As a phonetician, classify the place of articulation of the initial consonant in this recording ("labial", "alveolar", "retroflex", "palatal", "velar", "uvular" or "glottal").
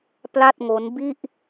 labial